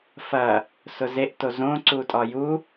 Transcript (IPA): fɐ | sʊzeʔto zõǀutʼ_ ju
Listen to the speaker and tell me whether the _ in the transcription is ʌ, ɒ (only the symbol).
ɒ